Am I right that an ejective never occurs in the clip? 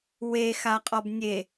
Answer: no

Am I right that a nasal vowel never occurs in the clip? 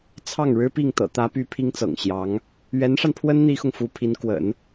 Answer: yes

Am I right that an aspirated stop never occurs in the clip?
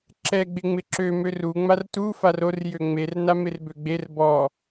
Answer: yes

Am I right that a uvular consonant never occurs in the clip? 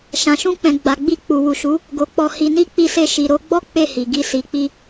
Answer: yes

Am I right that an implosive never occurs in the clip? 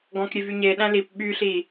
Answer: no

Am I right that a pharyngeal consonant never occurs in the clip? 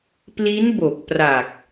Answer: yes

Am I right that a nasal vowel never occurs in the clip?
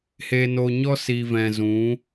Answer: no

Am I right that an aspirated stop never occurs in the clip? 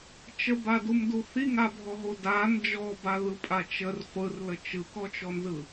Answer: yes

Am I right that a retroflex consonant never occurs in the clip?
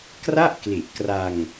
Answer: yes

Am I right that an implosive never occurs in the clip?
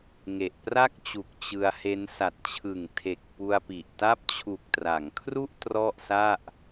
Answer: yes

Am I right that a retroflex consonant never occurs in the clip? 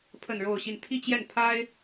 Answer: no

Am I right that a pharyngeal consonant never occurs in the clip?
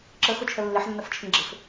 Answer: no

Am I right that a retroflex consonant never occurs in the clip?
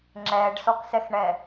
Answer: no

